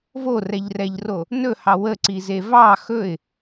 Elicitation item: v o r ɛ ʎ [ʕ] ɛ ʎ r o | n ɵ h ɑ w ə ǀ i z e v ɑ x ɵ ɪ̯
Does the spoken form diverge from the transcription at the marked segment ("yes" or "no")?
yes